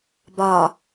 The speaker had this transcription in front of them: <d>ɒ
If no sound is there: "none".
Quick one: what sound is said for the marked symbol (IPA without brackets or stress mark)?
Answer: b